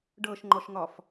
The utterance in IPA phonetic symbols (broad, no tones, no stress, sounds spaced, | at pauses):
ɖ ɤ ʃ ŋ͡ǃ ɔ ʃ ŋ ɒ f